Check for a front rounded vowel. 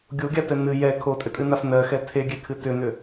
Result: present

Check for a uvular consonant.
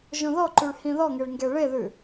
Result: absent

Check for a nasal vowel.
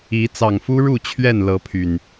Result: absent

